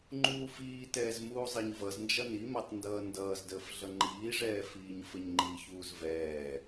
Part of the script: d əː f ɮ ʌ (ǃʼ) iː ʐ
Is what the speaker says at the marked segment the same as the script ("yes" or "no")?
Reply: no